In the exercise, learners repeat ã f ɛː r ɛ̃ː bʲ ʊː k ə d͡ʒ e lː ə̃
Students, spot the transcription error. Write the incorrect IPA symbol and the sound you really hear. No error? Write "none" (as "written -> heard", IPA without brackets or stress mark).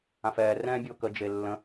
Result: none